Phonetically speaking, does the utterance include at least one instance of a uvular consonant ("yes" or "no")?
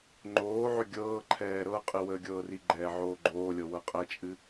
yes